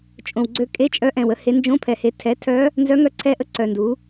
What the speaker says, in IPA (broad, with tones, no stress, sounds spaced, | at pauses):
t͡ʃʼ õ˨˩ w ɡ͡ǀ ø˧˥ kʼ e˧˥˧ t͡ʃʼ œ˧˥ ʔ ɛ̃˨˩ w ə˧˥ h e˩˥ n d͡ʒ õ˧˥˧ pʰ ɛ˨˩ h e˩˥ tʰ ɛ˩˥ tʰ œ˧˥ | n z œ˧˥ ŋ œ˧˥ ǀʰ ɛ˧˥ ʔ ə˧˥ ǀ œ˨˩ n d u˩˥